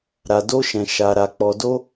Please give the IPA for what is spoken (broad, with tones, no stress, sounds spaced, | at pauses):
ɾ a˧ d o˦ ʃ ɛ̃˧ ʃ a˧ ɾ a˧ k͡p ɔ˧ d o˦